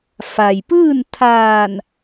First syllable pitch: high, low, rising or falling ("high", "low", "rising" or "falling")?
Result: low